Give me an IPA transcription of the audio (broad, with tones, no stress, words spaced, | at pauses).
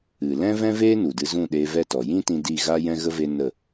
ɨ˨ lɛ̃˦vɛ̃˦veː˦ nu˨dɨ˧zũ˦˨ɗeː˧ vɛ˦˨tɔ˨ jĩ˦tĩ˧ di˦˨ ɣaː˦jɛ̃˦ɣə˦ ve˦nə˦˨